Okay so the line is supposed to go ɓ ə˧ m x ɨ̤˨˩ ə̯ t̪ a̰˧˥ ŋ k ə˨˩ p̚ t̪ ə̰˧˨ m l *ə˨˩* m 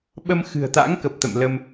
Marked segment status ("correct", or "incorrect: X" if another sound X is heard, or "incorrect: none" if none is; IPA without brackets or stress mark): incorrect: ə˧